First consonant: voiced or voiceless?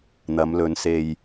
voiced